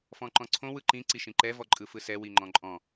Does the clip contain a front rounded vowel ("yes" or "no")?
no